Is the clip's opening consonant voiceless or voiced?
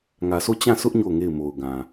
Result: voiced